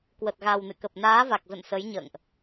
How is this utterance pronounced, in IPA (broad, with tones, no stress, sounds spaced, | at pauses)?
k w ə˨˩ t̚ ɣ a˨˩ w n ɨ̰˧˨ k ə˨˩ p̚ n aː˨˦ v a˨˩ k̚ z ə̰˧˨ n s ə˨˦ j ɲ ə̰ː˧˨ ŋ ʔ